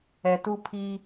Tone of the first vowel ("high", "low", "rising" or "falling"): low